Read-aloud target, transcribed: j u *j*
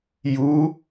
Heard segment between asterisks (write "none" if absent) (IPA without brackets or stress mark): none